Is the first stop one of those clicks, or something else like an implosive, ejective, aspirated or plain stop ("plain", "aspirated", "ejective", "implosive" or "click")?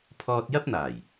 aspirated